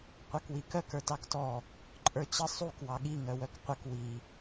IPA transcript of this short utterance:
qʷ ɑ k w i k œ k ə˞ t ɑ k t ɔ | ǃʼ ə˞ t͡ɕ ə sˤ u k w ɑ ɠ i ŋ œ w œ k qʷ ə k w i

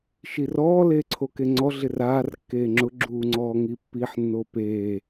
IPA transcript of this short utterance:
ʃ i r ɔː l eː ǀʰ o k e ŋ͡ǀ ɔ ɮ ɪ r aː r kː eː ŋ͡ǁ ʊ ɡ͡ǁ uː ŋ͡ǀ ɔː ŋ i pː i ħ nː o p eː

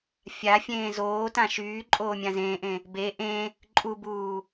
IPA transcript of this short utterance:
fʲ a fʲ ẽː z oː t ã ʃ yː ǃʼ oː mʲ ã z ẽː ʔ ẽ | b e ʔ ẽ | ǃʼ u b uː

